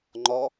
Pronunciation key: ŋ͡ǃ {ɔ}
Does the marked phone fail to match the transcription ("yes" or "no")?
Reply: no